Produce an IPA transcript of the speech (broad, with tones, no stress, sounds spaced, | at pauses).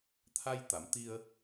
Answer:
t̪ʰ a˧ j t̪ a˨˩˨ m t̪ i˧ ə̯